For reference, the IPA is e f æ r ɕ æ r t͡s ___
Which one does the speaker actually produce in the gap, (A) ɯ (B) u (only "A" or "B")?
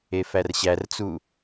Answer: B